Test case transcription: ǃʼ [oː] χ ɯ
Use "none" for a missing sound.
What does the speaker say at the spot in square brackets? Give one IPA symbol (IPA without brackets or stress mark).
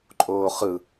oː